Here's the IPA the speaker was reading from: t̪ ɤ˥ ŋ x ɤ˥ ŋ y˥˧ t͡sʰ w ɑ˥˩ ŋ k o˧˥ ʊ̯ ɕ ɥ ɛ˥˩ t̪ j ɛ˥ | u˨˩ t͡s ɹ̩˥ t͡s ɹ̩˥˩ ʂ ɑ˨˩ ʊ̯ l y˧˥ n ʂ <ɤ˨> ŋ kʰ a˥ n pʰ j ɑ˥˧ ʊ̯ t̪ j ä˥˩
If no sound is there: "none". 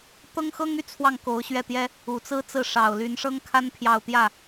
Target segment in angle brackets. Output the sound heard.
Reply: ɤ˥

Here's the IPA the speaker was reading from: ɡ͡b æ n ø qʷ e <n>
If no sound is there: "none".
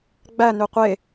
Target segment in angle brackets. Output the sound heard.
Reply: none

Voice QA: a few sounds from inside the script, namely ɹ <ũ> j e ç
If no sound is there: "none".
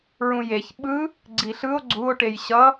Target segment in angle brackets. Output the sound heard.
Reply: ũ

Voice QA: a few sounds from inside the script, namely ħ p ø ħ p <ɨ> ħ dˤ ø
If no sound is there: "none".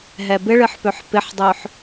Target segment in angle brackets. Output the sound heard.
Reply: ɪ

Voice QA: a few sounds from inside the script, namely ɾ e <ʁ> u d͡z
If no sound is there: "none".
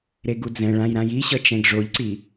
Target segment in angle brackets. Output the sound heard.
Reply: ɡ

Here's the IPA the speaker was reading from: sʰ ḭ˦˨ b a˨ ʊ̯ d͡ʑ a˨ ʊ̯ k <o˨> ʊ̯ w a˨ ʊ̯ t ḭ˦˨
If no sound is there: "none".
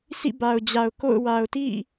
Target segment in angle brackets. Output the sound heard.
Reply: o̰˦˨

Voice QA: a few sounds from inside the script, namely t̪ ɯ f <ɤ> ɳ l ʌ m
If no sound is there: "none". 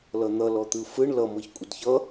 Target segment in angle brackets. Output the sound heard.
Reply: ɯ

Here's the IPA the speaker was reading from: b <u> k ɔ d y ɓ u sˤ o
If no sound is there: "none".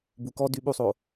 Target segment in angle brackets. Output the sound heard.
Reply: u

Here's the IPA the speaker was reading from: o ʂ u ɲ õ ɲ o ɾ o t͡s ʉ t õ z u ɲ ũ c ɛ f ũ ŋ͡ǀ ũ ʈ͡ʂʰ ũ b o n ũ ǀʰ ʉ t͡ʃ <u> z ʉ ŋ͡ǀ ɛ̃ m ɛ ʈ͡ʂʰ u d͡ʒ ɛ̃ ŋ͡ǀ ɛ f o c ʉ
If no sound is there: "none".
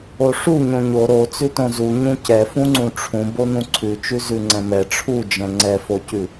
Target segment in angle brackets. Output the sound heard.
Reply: ʉ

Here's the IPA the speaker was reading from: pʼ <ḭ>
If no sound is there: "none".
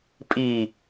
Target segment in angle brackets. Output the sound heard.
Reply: i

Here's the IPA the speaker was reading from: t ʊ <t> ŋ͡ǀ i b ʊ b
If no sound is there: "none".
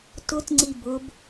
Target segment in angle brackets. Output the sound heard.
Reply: t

